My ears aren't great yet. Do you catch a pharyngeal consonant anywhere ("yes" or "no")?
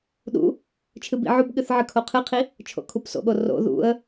yes